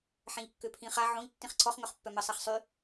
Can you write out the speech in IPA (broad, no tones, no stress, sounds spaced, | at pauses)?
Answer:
ħ ɛ̃ ʎ kː ø pʰ ĩ χ a ʕ õ ʎ tː ĩ χ ǀʰ ɔ χ ŋ œ χ pː œ m ə sˤ a χ sˤ y